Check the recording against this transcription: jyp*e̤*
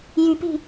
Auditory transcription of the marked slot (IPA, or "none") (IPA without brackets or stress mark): i̤